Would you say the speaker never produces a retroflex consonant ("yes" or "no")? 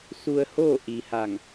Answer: yes